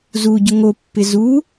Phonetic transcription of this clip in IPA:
z u ɟ ʊ ŋ o pː ɪ z u

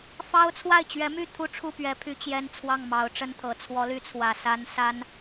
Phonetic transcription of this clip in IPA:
f ɑ˥ ʊ̯ t͡sʰ w a˥˩ ɪ̯ t͡ɕ ɥ ɛ˧˥ m y˥˩ t̪ʰ u˥ ʈ͡ʂʰ u˥˩ p ɥ ɛ˧˥ pʰ y˥ t͡ɕ j ɛ˥ n t͡sʰ w ɑ˥˩ ŋ m ɑ˧˥ ʊ̯ ʈ͡ʂ ə˥ n t̪ʰ ɤ˨˩ t͡sʰ w ɔ˧˥ l y˧˥ t͡sʰ w ä˨˩ s a˧˥ n s a˥ n

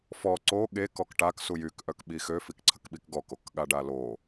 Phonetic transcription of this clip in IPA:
f ɔ ǀ o ɠ e k ɔ k ʈ a k s u j y k ʔ œ k ɓ i x ø f i k ǀʰ ə k ɓ i k ɡ ɔ k o k ɠ a ɖ a l o

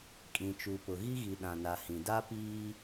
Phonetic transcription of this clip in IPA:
kʼ ĩ˨ t͡ʃ u˨ p ʊ˨ ɣ i˦ ɣ i˨ ɗ ã˨ n a˨ h ĩ˨ d a˦ p iː˦

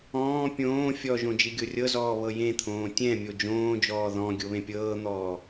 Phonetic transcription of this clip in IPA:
ɔ̃ː pʲ õː fʲ ɔ ʒ õ d͡ʒ i ɡʲ o rʲ ɤ z ɔː β ɤ j ẽ t̪ʰ õː tʲ ɛ̃ mʲ o d͡ʒ õː d͡ʒ ɔː ð ɔ̃ ɡʲ o β ẽ pʲ ɤː n̪ ɔː

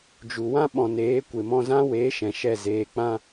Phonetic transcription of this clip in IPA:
d͡ʒ u˨ w ã˦ ɓ ɔ̃˨ n eː˨˦ kʷ e˨ m ɔ̃˧ z ã˦ w eː˨˦ ʃ ɛ̃˨ ʃ ɛ˦˨ z eː˧ k͡p ã˦

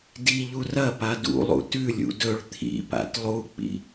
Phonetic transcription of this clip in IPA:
d i ʎ u r ɐ p a d ṵ lˠ ṵ t ʉ lʲ ṵ d ɵ ɭ t̪ʰ ḭ p a̰ t lˠ u k͡p ḭ

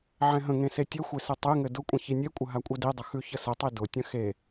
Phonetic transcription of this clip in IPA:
ʕ ɛ̃ ɦ ə̃ ŋ ẽ s e tʲ ɘ xʷ e s ɘ tˤ e ŋ ɘ d ʊ kʷʼ ə̃ ç i nʲ e kʷʼ ə ɦ a kʷʼ ɛ d i dˤ ə x ʉ ç ə s ə tˤ i d ʊ tʲ ə̃ x e

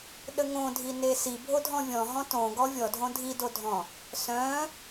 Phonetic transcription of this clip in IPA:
ɗ ə ŋ õ dʱ i n e s i bʱ o dʱ ɔ̃ vʲ ɔ̃ ɦ ɔ̃ t õ ɡ ɔ vʲ ɔ dʱ õ dʱ i d o dʱ ɔ̃ | s œ̃

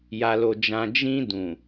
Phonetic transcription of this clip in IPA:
j a˨ l o˨ d͡ʒ ã˨ d͡ʒ ĩ˧ d ũ˨

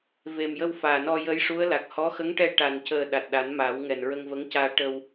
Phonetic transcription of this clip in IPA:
v e˨˩ m j ə˧ w f aː˨˩ n ɔ˧ j ə˧˥ j ʂ u˧˥ ə̯ l a˨˩ k̚ h ɔ˧˥ x ə˧˥ ŋ ʈ ɛ˧ ʈ a˨˩ n c əː˨˩ ɗ a˨˩ t̚ ɗ a˨˩˦ n m aː˨˩˦ w ŋ ɛ˨˩ n ɹ ə˧ ŋ v ə˧˥ ŋ c aː˧ ʈ ə˧ w

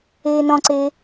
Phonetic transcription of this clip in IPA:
eː n ɔ̃ ǀ e

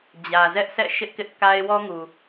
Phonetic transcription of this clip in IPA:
d͡ʑ ä˨ z ɛ˦ ʔ sʰ ɛ̰˦˨ ʃ ɪ˦ ʔ k ɪ˦ ʔ k a˦ ɪ̯ w ɔ˦ ŋ u˨

